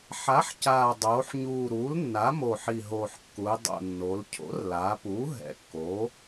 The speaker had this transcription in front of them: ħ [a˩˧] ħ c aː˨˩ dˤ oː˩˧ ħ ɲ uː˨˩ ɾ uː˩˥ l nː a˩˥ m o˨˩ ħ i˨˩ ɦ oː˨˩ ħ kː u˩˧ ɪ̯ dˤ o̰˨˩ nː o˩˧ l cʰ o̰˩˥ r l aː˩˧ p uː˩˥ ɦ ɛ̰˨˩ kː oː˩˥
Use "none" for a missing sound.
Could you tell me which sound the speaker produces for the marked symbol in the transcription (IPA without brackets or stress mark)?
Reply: a˩˥